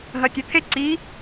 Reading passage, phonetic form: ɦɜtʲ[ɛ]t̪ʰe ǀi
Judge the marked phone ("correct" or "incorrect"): correct